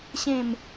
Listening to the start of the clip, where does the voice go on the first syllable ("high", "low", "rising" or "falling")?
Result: falling